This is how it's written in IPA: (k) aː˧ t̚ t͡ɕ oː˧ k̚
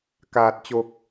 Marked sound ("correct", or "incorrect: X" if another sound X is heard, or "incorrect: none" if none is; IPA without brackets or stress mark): correct